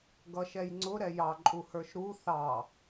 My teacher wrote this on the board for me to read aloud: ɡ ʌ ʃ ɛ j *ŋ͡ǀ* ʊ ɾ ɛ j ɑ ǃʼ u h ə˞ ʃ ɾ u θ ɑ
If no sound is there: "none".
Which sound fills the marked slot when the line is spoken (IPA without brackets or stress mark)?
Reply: ŋ͡ǀ